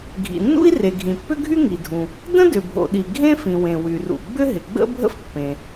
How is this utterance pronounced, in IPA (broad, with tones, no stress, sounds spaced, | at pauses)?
ɡʱ ḭ˩ nː ṵ˥ i̯ r e˩ ɡʱ ĩ˩ pː ʏ˥ ɡʱ y˥ ŋ i˩ dʱ ũ˩ | d ə̃˥ d ʏ˩ bʱ o̰˩ ɗ i˩ ɡʱ ẽ˥ f ĩ˩ w ẽ˩ w y˩ r ṵ˩ ɡ͡b ʏ˥ ɦ ɪ˩ ɡ͡b ə̰˥ bʱ ə̰˥ f pː ẽ˩